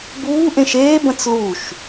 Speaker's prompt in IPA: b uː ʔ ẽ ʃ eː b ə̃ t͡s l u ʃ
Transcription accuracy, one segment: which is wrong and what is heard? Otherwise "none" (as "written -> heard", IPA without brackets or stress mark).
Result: none